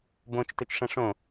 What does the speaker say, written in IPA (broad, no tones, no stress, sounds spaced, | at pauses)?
b õ t͡ʃ t ɵ t͡ʃ ʂ ɐ̃ ʂ õ